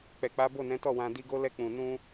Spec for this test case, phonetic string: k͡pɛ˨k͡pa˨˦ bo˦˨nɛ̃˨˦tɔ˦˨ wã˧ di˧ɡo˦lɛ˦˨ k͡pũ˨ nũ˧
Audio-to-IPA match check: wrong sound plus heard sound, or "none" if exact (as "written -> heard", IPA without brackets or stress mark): none